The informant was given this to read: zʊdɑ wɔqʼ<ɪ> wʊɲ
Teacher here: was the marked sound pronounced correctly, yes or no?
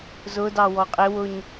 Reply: yes